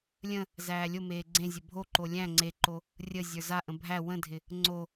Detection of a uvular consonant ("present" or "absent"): absent